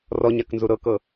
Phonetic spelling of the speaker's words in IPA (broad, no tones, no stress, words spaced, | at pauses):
rɔ ɲaknzuɾɤkɤ